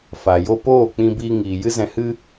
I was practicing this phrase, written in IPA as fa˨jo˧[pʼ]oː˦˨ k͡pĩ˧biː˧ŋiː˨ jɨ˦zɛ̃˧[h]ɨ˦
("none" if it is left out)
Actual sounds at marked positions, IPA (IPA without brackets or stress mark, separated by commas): p, h